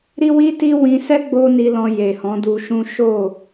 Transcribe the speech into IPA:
ɾ i˦ w i˦ t i˦ w ĩ˧ s ɛ˦ ɡ͡b o˦ n i˧ l ɔ̃˧ j e˨ h ɔ̃˨˦ d u˧ ʃ ũ˦ ʃ o˦˨

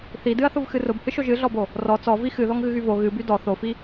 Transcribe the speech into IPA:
θ i d ɨ ɐ̯ θ ʊ v x ɨ r ʊ b h ɨ ʃ o ʒ ɨ ɮ ɔ b o | r ɔ t͡s ɔ v i x ɨ ð ɔ ŋ ɣ ɨ ɣ y v o ɣ ɨ b y d ɔ θ o f i

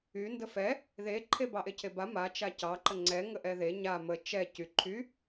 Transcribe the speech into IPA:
y n d ə f ɛ | ð e ǃʰ e b ɑ ʔ e cʰ e b a m a t͡ʃ a c ɑ ǃ ə ŋ͡ǀ ɛ ŋ ə ʔ ɛ ð e ɲ a m ə t͡ʃ ɛ c y ǃʰ y

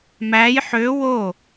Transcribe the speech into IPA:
m æ j ħ ø w o

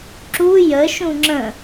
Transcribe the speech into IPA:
ǁ u j ə ʃ ũ ŋ͡ǁ ə̃

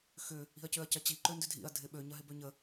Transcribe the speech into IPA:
x ʏ | i̤ ɐ̯ c ø ɐ̯ c ɐ t͡ɕ i ǃ ø n d ʏ dʱ ḭ ɐ̯ dʱ ɪ ɓ ø ɲ ɐ ɦ ɪ b ø ɲ ə

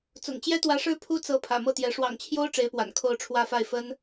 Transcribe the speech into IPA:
t͡s ʊ̰˨˩ ŋ t͡ɕ j ɛ˥ t̪ w ä˧˥ ʂ ɻ̩˥ pʰ u˥ t͡s ɤ˧˥ pʰ ä̰˨˩ m ɤ˥˩ t̪ j ɛ˧˥ ʂ w ɑ̰˨˩ ŋ t͡ɕʰ j o˥ ʊ̯ ʈ͡ʂ e˧˥ ɪ̯ p w a̰˨˩ n kʰ o˥˧ ʊ̯ ʈ͡ʂʰ w ä˥˧ f a˥˩ ɪ̯ f ə˥ n

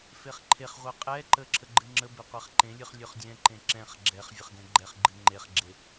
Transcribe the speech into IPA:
f e χ ǃʰ e χ ʁʷ ɛ qʼ ɛ ǃ ə ǁʰ ə ɡ͡ǃ ɨ ŋ͡ǁ ə b e qʷ ɛ χ ǃ ẽ lʲ ɨ χ lʲ ɵ χ dʲ ɛ̃ ǃ ẽ ǁ ɛ̃ χ ɡ͡ǁ ɛ χ vʲ ə χ ɡ ɛ̃ ɡ͡ǃ ɛ χ ɡ͡ǃ ɨ ŋ͡ǃ e χ ɡ͡ǁ e

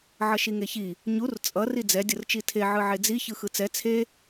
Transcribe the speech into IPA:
ʕ ʌ ʃ i ŋ e ç i | ɲ u r t͡sʼ ʌ r i d͡z ɛ dʲ ʌ r t͡ʃ i tʰ e ʕ ɯ ʕ e d͡z i ç ɯ x ɯ t͡s ɛ t͡sʰ e

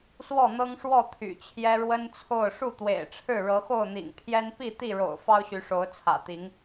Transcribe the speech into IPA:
s w ɔ˥˨ n̪ ɤ˦ ŋ ʂ w ɔ˥˨ t̪ʰ y̰˨˩ t͡ɕʰ j ɛ˦ ɻ w ə˦ n t͡sʰ o˥˨ ʊ̯ ʂ u˥˨ t̪ w ḛ˨˩ ɪ̯ ʈ͡ʂʰ ɻ̩˥˨ ɻ ɤ˨˦ x o˥˨ ʊ̯ n̪ ḭ˨˩ ŋ pʰ j ɛ˦ n p i˥˨ t̪ i˥˨ ɻ o̰˨˩ ʊ̯ f ɑ˦ ʊ̯ ɕ y˨˦ ʂ o˨˦ ʊ̯ t͡sʰ ä̰˨˩ t̪ i˨˦ ŋ

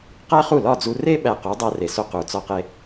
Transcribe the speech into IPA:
q æ˥ χ u˥˩ l ɒ˥˩ d͡z u˧ r e˥ ɓ æ˧ q u˩˥ dˤ æ˧ r e˩ s o˧ q u˩ t͡s ɒ˧ q e˧

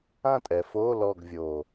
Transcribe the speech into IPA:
ã˥˧ tʼ ɛ˩˧ f oː˧˥˧ l ɔ˥˧ ɡ vʲ o˨˩

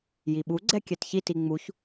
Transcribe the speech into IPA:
j i ɓ u ɡ͡ǀ ɛ kʲ ɛ t ç i t i ŋ͡m u ç

